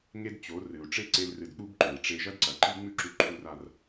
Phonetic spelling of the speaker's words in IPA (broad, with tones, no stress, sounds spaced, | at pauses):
ŋ e˦ d t͡ɕ o˨˦ r ɨ˨ u̯ ʈ͡ʂ e˦ ǀ e˧ l r ɨ˨ d k͡p u˧ b ǃ ɵ˨ i̯ ʈ͡ʂ e˧ ʒ ɐ˦ d ǀ ɐ˨ ǃ i˦ ŋ͡m ʉ˦ ǁ ʉ˧ ǃʰ u˧ r a˧ r